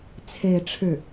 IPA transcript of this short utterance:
t͡sʰ e˥˧ ɪ̯ ʈ͡ʂʰ ɻ̩˥˩

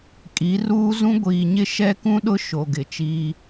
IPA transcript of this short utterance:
kʼ i˨˦ r uː˦ z ũ˦ ɡʷ iː˨ ɲ ɪ˦ ʃ ɛ˦ k ũ˦ ɗ ʊ˦ ʃ o˨ ɡ ɪ˨ t͡ʃ iː˦

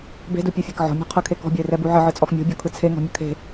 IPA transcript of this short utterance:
b e̤ d u pʲ u fʲ e k ʕ ɔ̤ mʲ ɔ̤ qʰ ə kʰ e k ɔ̤ bʲ ə ɪ̯ r ɛ b u ʕ ə ʕ ɯ t͡sʼ ɔ x mʲ ɔ̤ bʲ ɔ kʰ ɯ t͡sʰ e ŋ ɔ̤ mʲ ə kʰ e̤

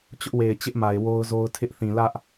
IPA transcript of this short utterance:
t͡ɕ ʊ˦ ʔ w e˨ ɪ̯ t͡ɕ ɪ˦ ʔ m a˨ ɪ̯ w o˦ ʊ̯ z o˦ ʊ̯ tʰ ɪ˦ ʔ θ ĩ˨ l ä˦ ʔ

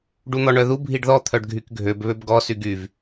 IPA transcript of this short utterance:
ɖ u n̪ ɔ ɳ œ ð u bʱ i ɖ ð ɔ t̪ʰ œ ɖ ɡʱ y k ɡʱ ø b β ø b ɡ ɔ s y ɡ y v

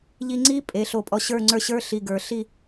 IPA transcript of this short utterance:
ʎ i˧ ŋ͡ǀ i˥ pʼ e˩˧ ɬ o˧˩ pʼ ɔ˧ ɕ ə˞˥˧ ŋ͡ǀ ə˞˥˧ ɕ ə˞˥ ɬ i˧˩ ɡ ə˞˩˧ ɬ i˥˧

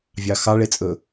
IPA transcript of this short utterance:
vʲ ɑ x ɑ ɭ e t͡sʼ ɵ

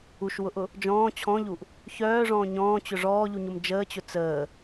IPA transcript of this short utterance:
u ʃ w ʊ ʔ ʊ | d͡ʒ ɔ̃ː t͡ɕʰ ɔ̃ ʎ u ʔ | ç œː ʐ ɔ̃ː ɲ ɔ̃ː t͡ɕ ʊ ʐ ɔː ʎ u ɲ ʊ m d͡ʒ əː t͡ɕ ʊ t͡s əː

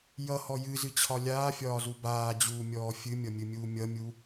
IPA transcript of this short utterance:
j ʌ h ɔ j ɨ z ɨ t͡ɕʰ ɒ lʲ aː fʲ ɒː z u b aː d͡ʑ uː mʲ ɔː fʲ ɨ mʲ ʌ mʲ ɨ mʲ uː mʲ ʌ mʲ u

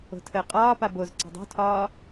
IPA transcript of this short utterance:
o̤ tʰ əː qʼ ɒː p a b o z ǀ a̤ dˤ o̤ tʰ ɒː

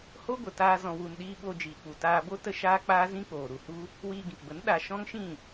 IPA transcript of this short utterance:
h o˦ ɡʷ ə˨ t aː˧ z ɔ̃˨ w u˨ n ɗ iː˧ ɓ o˧ d͡ʒ iː˨ k͡p u˨ t aː˧ b o˦ t ə˦ ʃ aː˦ k͡p aː˦ z ĩ˦ k͡p oː˨ ɾ u˨ h u˦ | w iː˧ ɡ ĩ˨ k b ə˨˦ n ɗ a˧ ʃ ɔ̃˦ ŋ ʃ ĩ˦˨

